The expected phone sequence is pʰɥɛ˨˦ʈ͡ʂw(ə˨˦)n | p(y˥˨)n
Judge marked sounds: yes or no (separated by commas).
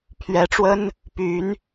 no, no